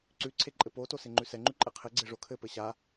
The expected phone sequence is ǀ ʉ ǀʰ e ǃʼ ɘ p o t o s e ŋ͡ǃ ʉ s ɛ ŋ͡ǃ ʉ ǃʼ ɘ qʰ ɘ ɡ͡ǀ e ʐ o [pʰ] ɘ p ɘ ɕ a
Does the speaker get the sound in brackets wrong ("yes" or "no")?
yes